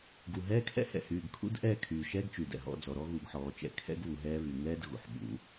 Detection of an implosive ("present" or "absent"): present